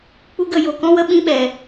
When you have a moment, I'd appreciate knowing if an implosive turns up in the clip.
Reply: yes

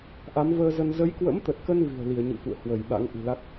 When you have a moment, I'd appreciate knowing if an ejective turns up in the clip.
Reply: no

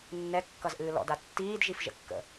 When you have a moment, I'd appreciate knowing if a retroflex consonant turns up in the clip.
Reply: no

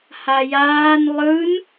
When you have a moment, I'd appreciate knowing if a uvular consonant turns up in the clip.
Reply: no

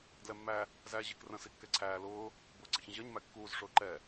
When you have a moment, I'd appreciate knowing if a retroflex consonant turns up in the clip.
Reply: yes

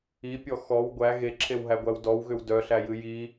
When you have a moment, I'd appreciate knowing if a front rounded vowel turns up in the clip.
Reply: yes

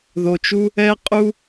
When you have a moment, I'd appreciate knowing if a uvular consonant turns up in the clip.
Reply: yes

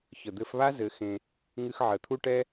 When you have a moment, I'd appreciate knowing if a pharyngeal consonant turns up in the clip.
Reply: yes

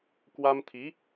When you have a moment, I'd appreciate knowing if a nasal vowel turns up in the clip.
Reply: no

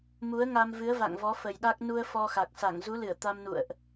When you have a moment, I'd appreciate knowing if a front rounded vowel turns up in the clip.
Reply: no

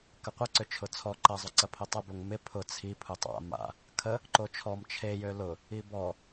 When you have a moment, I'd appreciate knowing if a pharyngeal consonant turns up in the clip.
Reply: no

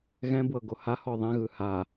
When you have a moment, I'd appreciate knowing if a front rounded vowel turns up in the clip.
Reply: no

